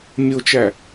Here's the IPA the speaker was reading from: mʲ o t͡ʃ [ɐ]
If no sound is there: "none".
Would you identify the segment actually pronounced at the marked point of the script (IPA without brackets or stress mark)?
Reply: æ